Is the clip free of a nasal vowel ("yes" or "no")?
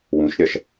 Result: no